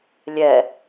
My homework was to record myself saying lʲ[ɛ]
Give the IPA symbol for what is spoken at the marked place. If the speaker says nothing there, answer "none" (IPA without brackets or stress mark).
ɛ